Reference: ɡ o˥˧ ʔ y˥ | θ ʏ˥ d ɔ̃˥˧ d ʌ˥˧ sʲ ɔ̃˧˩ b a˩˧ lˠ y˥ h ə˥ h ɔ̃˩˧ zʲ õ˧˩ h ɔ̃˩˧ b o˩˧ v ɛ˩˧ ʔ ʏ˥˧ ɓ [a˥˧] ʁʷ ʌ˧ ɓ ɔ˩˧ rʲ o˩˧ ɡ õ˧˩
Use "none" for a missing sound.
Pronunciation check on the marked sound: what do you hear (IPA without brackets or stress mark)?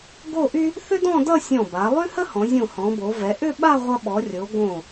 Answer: a˥˧